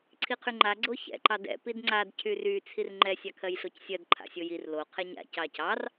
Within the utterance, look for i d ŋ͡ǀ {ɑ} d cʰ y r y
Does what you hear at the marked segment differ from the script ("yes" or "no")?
yes